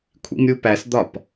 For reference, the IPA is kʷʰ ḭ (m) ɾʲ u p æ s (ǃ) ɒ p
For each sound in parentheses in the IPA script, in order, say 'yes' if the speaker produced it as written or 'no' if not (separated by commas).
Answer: yes, no